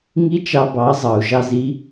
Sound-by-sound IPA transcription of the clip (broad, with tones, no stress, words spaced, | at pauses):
ŋi˦t͡ʃɑ˧bɑ˨˦ zˤɑ˨u̯ʒɑ˧zi˧